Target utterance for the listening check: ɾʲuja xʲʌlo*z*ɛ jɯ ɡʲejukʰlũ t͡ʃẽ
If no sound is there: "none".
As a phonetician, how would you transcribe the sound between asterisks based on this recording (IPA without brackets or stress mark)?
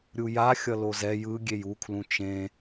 z